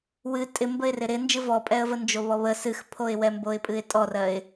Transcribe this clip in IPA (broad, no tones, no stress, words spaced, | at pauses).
wɨ tʼɪ mbəɪ̯rɪɾɪnd͡ʒɨ vɔpʼɛə̯və nd͡ʒoβɔβə sɨxpʰoɪ̯wɛ mboɪ̯pʼɨɪ̯tʼɔrɜɪ̯